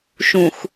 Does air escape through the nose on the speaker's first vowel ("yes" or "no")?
yes